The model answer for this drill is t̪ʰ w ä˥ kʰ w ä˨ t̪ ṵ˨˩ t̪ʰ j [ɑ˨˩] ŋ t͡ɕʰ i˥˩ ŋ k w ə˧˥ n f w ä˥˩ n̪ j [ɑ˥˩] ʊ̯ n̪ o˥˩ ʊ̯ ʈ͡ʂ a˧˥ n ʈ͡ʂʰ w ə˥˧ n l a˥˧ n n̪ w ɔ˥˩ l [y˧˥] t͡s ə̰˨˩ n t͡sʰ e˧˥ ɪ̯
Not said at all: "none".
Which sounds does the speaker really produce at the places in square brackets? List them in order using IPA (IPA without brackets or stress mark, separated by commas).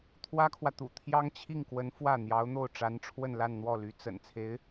ɑ˥, ɑ˧˥, y˧˥